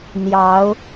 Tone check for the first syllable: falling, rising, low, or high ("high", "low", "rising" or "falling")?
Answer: rising